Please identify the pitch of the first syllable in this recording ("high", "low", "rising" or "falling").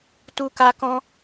high